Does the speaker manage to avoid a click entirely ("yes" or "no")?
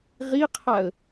yes